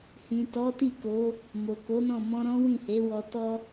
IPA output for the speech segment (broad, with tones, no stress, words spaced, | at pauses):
hĩ˨tɔ˨˦ti˦˨ko˨˦ | mo˨ko˨˦nɔ̃˦˨ mɔ̃˧ɾɔ̃˦ wĩ˦˨he˨˦wɔ˧ tɔ˦